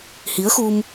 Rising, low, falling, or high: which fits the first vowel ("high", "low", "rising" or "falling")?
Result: rising